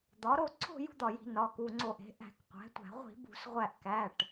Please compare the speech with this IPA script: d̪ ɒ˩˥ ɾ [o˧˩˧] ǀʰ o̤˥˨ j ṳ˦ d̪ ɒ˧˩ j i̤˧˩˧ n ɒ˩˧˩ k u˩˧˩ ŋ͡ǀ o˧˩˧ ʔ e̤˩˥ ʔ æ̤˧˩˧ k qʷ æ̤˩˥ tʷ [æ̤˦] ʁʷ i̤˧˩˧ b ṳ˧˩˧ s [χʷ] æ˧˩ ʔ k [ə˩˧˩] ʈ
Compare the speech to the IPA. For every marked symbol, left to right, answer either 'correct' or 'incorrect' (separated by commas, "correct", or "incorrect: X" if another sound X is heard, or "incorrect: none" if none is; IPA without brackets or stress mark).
incorrect: o˥˨, incorrect: æ̤˧˩˧, incorrect: ʁʷ, incorrect: æ˩˧˩